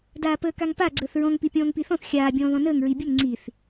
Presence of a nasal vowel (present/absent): present